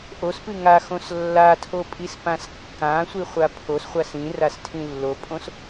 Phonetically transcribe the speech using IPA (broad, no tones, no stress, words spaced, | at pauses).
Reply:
ʔospɨ ŋaxõs lːatʰopʼispãs kːãsʷiχʷa pʰosχʷas ĩrastʰĩ lːopʼõs